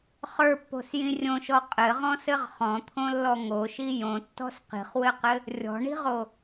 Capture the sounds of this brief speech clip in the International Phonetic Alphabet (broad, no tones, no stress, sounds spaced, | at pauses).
χ ə˞ pː o̤ s j ĩ rʲ õ ʃ ɔ qʼ ɘ ʁ ɔ̃ s ɘ ʁ χ ɔ̃ t̪ʰ õ lː ɔ ŋ o ʃ i j õ tː ɔ̤ s q i̤ χ w ɘ q ɘ | rʲ ɔ̤ ɳ i̤ ʁ o